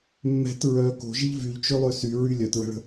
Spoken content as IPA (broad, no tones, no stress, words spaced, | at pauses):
mːɛ̤t ɹœ ko̤ʒiʎ vyʎt͡ʃølˠø syɹy lʲœtɹə̤ɭə̤